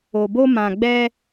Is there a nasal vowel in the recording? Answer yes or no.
yes